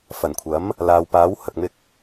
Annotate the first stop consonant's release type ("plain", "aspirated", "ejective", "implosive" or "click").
aspirated